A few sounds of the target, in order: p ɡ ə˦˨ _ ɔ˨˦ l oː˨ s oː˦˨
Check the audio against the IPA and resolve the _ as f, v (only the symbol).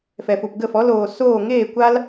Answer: f